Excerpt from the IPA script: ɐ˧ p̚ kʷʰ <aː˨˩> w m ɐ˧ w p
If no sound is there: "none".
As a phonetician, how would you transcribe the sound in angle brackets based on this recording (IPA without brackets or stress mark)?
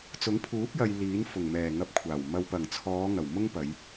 aː˨˩